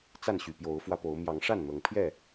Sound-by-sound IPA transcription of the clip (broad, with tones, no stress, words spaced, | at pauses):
t͡sa˥˨nɕy˨˩ pjo˨˦ʊ̯fwä˧po˨˦ʊ̯ mjɑ˨˦ŋʂa˥˨n n̪ɤ˨˦ŋ pʰjɛ˥˨